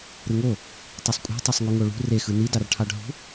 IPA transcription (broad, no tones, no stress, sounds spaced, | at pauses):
ɾ ɯ ŋ o | tˤ i sˤ kʷʼ ɑ̤ tˤ o sˤ ŋ u ŋ o ɭ ṳ r e x ɯ n i d ɑ r ʈʰ ɑ ɖʱ ṳ